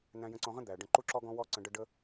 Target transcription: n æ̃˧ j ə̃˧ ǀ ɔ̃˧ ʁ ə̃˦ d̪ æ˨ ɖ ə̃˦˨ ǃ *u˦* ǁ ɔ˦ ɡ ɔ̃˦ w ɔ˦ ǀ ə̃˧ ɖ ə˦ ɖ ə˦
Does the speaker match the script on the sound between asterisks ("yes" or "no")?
yes